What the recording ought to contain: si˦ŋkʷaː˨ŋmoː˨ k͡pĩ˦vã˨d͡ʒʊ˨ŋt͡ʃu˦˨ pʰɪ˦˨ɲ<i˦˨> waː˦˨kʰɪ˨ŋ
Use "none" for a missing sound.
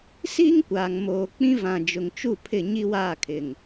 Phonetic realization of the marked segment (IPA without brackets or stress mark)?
i˦